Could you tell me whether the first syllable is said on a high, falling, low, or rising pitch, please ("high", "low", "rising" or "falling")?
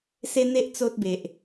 high